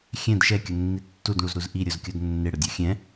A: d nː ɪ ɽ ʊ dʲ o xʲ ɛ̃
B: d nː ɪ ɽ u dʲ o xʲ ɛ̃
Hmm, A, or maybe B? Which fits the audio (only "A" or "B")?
A